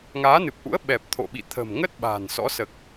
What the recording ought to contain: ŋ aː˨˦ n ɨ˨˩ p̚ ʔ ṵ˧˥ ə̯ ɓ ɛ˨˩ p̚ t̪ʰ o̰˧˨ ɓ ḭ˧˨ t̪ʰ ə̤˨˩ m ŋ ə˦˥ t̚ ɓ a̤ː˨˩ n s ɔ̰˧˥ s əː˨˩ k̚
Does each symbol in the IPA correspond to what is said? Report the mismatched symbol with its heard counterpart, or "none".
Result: none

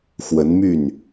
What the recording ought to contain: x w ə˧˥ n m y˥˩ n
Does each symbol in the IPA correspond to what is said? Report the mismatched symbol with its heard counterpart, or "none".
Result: none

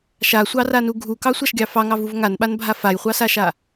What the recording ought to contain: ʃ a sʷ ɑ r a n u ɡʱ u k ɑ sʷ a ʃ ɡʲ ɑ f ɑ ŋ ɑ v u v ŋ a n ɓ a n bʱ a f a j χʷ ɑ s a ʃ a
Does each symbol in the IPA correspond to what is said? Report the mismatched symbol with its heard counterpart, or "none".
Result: none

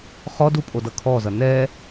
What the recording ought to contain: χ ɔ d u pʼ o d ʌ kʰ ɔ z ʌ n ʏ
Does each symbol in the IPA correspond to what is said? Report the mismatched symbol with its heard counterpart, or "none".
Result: ʏ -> ɛ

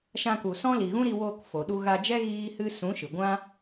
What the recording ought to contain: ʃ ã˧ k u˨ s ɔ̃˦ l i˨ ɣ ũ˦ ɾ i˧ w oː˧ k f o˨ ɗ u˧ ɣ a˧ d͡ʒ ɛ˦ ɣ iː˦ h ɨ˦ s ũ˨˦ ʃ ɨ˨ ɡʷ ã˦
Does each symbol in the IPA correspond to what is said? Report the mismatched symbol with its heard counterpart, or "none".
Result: none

